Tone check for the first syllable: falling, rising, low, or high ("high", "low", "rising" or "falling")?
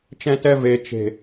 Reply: high